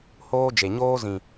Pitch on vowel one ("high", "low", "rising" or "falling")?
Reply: high